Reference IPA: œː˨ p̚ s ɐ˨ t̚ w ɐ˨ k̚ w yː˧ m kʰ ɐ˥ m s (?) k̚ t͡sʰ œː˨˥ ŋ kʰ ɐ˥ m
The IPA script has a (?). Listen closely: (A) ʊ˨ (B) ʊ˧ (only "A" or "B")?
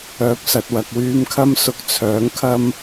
B